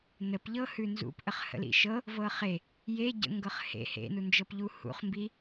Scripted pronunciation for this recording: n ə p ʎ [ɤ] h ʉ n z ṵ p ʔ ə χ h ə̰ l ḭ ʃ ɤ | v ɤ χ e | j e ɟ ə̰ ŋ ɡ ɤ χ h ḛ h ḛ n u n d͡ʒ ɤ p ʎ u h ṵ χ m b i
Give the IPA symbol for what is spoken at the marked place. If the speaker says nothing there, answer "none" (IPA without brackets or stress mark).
ɤ